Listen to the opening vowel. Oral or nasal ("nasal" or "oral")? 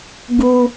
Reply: oral